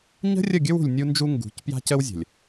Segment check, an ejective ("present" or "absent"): absent